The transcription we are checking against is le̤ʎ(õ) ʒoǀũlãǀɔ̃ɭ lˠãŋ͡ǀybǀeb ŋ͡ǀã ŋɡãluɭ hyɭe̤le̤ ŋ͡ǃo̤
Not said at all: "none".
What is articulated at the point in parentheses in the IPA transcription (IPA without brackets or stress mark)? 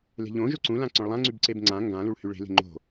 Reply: õ